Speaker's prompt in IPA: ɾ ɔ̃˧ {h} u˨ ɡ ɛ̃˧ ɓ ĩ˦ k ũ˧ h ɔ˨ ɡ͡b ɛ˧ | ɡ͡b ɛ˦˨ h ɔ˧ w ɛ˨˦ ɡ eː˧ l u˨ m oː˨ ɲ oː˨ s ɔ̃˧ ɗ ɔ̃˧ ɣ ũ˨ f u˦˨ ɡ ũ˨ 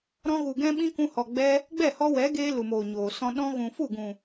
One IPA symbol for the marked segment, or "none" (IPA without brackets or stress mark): ɣ